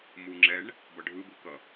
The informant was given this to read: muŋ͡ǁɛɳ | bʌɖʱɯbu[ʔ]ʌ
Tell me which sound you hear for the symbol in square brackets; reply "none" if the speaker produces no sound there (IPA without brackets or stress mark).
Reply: k